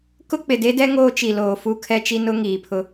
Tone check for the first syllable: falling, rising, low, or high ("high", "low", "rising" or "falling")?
high